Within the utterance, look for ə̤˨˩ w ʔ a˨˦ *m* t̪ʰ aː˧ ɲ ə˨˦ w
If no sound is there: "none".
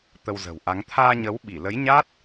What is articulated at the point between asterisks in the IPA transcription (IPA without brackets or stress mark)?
ŋ